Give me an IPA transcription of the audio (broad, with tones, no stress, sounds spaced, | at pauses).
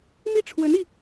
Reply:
m i˥˩ ʈ͡ʂʰ w ə˧˥ n i˧